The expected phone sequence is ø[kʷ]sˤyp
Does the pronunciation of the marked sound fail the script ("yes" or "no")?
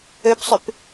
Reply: yes